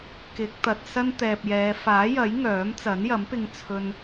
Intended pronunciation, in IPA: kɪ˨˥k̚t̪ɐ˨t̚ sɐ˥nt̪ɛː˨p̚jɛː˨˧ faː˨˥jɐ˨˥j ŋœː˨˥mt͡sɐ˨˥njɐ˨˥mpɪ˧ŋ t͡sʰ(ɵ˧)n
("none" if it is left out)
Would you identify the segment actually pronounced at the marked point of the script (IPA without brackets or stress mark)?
ɵ˧